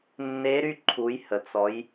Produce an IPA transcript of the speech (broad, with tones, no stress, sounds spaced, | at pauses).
nː e˦˥ ɾ y˥˧ ǃʰ u˨˦ j h ə˨ t͡s ɔ˨˦ j